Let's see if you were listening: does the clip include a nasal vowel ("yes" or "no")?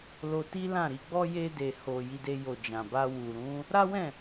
yes